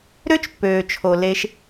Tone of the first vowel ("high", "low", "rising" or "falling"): high